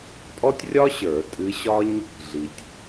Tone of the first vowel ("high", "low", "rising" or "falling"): high